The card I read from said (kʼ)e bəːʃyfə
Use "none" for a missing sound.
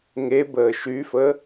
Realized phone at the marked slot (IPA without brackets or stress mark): ŋ